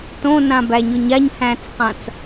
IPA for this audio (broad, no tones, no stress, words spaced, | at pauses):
tõnãbæɲʊɲ aɲhæ̃t͡sqãt͡s